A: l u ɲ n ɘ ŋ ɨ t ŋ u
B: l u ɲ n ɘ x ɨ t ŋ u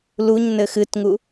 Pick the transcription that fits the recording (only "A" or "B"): B